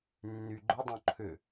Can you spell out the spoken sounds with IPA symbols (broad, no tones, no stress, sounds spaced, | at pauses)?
nː y ɡ͡ǃ ʊ dˤ õ ǃʰ ʏ